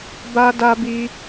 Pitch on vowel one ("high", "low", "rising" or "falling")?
high